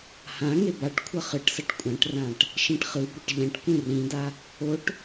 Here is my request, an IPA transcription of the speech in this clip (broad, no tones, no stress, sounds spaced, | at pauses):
h ã ŋ e b a ʈ kʷʰ ʌ χ ɯ ʈ s ʌ ʈ kʷʼ ã ʈ r ã ʈ | ʃ ĩ ʈ χ ɯ b o ʈ ʎ ɛ̃ ʈ kʷ ĩ r ĩ d a | o ʈ